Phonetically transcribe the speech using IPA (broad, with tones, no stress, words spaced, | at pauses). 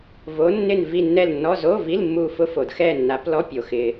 vo˨˦nːɪ˦˨n vi˦˨nːɛ˦˨lnːɔ˧˥˧ zo˧˥˧vi˧˥˧l mːu˦˨fʊ˦˥fo˨d xɛ˦˨nːa˨˦plɔ˧˥˧ pʲo˨xɪ˨